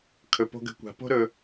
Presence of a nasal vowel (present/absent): absent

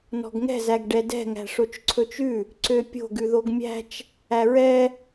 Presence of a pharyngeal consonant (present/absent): absent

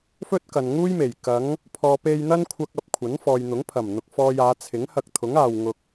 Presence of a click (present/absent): absent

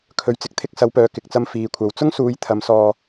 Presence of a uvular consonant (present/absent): absent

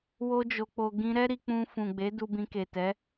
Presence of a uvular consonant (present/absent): absent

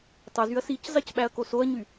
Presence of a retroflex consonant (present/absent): absent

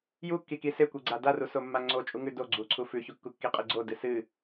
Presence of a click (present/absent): present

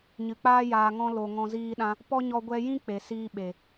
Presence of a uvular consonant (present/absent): absent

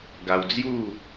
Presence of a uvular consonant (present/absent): absent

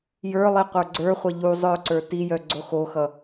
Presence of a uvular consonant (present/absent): present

